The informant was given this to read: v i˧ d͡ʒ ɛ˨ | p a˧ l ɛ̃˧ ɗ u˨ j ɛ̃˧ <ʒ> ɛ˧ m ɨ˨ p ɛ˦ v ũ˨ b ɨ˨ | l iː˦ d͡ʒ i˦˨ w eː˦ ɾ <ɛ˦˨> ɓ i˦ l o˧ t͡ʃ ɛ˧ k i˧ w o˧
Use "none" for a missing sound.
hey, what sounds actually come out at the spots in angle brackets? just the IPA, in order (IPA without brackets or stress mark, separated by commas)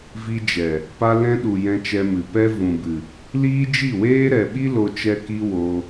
t͡ʃ, ɛ˨